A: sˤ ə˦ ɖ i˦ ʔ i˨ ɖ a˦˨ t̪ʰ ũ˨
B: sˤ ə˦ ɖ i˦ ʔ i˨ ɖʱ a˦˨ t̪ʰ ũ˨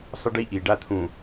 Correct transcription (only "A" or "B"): A